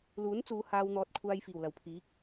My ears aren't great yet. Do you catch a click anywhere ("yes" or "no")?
no